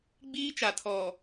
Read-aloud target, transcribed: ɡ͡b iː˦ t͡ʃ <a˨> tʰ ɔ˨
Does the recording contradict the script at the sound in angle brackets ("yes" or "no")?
no